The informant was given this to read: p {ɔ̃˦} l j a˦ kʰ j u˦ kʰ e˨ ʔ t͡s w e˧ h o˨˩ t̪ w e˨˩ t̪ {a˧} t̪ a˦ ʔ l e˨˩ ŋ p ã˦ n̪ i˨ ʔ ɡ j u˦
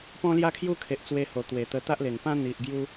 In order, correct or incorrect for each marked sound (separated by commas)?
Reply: correct, incorrect